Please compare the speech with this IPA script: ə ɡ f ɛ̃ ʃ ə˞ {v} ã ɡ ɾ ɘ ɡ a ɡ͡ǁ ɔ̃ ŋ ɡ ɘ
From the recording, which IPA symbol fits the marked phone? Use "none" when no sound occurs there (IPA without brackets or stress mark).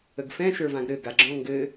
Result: v